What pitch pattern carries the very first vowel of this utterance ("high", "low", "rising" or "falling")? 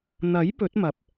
rising